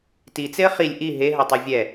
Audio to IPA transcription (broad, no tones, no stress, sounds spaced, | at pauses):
t i t͡s e ə̯ χ i lʲ ʔ i ɦ e ɦ œ tˤ œ vʲ ɛ